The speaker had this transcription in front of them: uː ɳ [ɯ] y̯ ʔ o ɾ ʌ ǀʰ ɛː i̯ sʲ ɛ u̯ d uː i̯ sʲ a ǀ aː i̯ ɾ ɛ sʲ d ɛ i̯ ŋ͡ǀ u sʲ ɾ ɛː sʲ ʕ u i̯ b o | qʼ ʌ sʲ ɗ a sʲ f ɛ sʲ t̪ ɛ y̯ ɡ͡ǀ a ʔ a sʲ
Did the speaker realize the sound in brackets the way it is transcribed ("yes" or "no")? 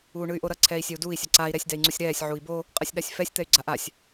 yes